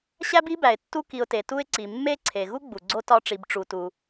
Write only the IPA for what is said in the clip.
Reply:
ɕ æ˥ b i˥ b æ˩ ɪ̯ tː u˦ k i˨ ʊ̯ t e˩ t u˦ ɪ̯ ǀ i˩ mː e˥ ǀʰ e˩ ɣ u˥ ɡ͡b u˩ ɡ͡ǀ o˥ t ɒ˦ ʈ͡ʂ i˨ b ʈ͡ʂ u˨ t u˨

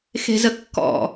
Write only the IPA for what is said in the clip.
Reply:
x e̤ z ə kː ɔ̰

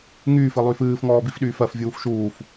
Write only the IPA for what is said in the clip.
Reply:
ŋ yː f ɨ lˠ yː f ɨː f ŋ ɔː b i f ɗ yː f ɜ f vʲ uː f ʃ uː f

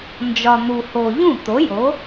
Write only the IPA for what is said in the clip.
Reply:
n d͡ʒ ɒ˨ n̪ u˨ h o˨ ʎ ũ˥˩ t̪ o˨˥ j o˨˥

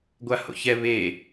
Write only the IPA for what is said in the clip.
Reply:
ɡʷ a h o̰ ç ɛ β e

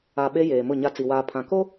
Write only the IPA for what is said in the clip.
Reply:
a˨ ɓ e˦ j eː˨ m ʊ˦˨ ɲ a˦ t͡s i˨ w aː˨ pʰ ã˨ k o˦

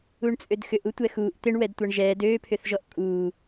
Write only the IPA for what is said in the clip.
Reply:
u ɳ t͡sʼ ø d x ʏ ʔ u tʷ ɛ x uː ʔ t̪ ɪ ɳ w ɛ d tʷ a ɳ ʒ ɛː d øː pʰ ʏ θ ʒ ɔ ʔ kʼ uː

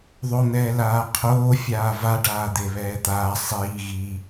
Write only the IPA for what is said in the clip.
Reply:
ðˤ o n̪ ɛː l aː qʰ oː fʲ aː v a ɖ aː d̪ e β ɛː t̪ aː sˤ iː ɣ i

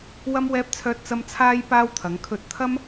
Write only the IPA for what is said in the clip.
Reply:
w ɐ˥ m w ɛː˥ p̚ t͡sʰ œː˥ t̚ t͡s ɐ˥ m t͡sʰ aː˥ j p aː˥ w t̪ʰ ɐ˨˧ ŋ kʰ ɵ˧ t̚ t̪ʰ ɐ˥ m

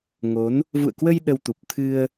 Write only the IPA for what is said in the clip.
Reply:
ŋ o˨˦ n | v ṵ˧˨ ə̯ k w ə˧ j ɗ ə˧ w t̪ u˨˩ p̚ t̪ʰ ɨ˧ ə̯

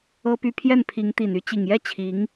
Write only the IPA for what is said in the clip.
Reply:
ɤ˥ p y˥˧ pʰ j ɛ˥˩ n pʰ i˧˥ ŋ t̪ i˨˩ n y˥˩ t͡ɕ i˨˩ ŋ j ɛ˥˩ t͡ɕʰ i˧˥ ŋ

